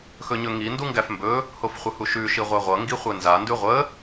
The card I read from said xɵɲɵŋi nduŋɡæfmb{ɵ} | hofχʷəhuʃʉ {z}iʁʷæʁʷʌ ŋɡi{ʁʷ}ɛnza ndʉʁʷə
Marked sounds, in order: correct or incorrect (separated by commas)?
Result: correct, incorrect, incorrect